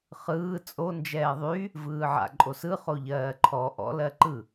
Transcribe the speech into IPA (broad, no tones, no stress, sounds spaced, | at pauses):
χ ɯː t͡sʼ o n d͡ʒ ɛː ðˤ y | v ɯː ʕ a̰ ǃʼ o s ɯ χ o ʎ ɜː ǃʰ ɔ ʔ ɔ̰ l ɜ ǃ ɯ